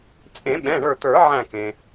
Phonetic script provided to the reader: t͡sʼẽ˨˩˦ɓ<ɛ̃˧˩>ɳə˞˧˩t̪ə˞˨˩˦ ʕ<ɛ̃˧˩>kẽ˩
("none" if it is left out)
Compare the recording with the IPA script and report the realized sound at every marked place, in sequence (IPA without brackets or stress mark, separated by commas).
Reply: ɛ̃˩˧˩, æ̃˧˩